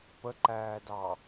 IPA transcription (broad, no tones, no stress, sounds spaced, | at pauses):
p ə ǃ æː d ɑ